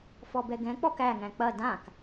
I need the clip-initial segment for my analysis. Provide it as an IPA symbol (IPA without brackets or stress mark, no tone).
f